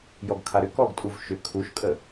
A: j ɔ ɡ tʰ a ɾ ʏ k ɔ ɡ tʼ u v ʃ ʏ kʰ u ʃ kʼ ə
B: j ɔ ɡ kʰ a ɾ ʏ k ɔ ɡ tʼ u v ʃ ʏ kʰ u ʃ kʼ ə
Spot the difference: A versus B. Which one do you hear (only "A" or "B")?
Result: B